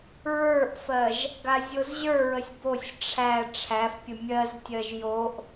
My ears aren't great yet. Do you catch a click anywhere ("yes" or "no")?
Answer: no